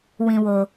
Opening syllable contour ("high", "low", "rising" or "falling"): low